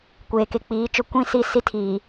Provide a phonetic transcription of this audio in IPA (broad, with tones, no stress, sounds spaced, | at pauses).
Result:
kʷ eː˨ k e˨ k͡p iː˨˦ t͡ʃ ʊ˦ kʷ ĩ˦˨ s i˦˨ s i˦ tʰ iː˨